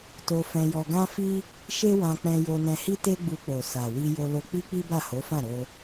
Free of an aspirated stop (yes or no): yes